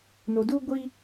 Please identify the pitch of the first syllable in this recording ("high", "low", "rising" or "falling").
low